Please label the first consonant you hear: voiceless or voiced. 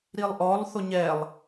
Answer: voiced